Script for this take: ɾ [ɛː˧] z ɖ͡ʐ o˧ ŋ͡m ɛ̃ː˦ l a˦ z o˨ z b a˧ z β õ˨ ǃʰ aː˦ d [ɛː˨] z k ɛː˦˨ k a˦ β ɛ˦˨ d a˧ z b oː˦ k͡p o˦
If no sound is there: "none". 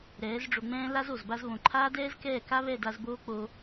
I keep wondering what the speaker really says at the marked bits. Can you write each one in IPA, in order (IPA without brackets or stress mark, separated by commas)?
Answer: ɛː˨˦, ɛː˦